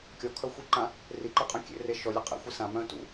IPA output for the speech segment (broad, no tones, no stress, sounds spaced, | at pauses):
kʲ ɔ kʰ œ xʷ i ǃ ã | r i ǃ e qʼ œ̃ kʲ ḛ r e ʃ ɔ lʲ ə qʼ ḛ xʷ i s ã m œ̃ t ṵ